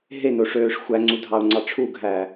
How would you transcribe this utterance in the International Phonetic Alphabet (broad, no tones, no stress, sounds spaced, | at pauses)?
ɦ e n o ʂ øː ʂ xʷ æ ŋ͡ǀ u dʱ ɑ ʊ̯ ŋ͡ǀ ɑ ʈ͡ʂʰ u ɡʱ æː